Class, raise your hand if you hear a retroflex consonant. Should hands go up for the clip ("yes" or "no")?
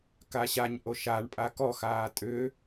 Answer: yes